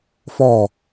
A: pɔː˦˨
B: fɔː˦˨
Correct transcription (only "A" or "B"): B